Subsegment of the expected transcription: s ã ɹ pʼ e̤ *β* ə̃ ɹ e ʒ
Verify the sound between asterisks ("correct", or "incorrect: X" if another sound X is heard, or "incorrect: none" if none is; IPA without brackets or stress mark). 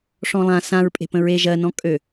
incorrect: p